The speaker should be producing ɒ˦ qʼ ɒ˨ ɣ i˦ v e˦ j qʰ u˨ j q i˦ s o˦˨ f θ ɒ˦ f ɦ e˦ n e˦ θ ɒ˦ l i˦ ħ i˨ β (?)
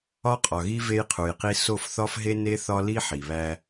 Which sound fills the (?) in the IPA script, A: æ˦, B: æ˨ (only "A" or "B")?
A